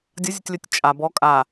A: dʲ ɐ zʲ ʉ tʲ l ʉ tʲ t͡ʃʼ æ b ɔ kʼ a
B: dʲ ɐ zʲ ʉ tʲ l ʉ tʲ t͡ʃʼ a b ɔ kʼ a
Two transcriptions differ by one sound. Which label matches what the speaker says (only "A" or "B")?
B